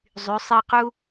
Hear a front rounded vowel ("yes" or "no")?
yes